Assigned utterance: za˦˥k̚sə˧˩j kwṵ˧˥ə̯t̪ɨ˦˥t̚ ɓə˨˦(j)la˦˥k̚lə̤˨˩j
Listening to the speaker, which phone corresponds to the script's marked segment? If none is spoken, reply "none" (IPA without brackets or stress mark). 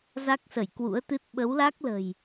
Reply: w